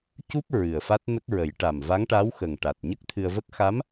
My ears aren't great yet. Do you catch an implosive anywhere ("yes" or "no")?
no